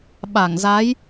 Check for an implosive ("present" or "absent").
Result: present